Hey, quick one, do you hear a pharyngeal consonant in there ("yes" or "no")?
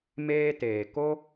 no